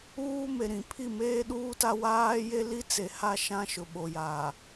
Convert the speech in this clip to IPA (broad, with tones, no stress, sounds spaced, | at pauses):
uː˦ m e˨ ɾ ĩ˨ pʰ i˦˨ m eː˦ ɗ uː˦ t a˦ w aː˦ j e˦ l i˦ t͡s e˨ h a˦˨ ʃ ã˦ ʃ ʊ˨ ɓ o˨ j aː˨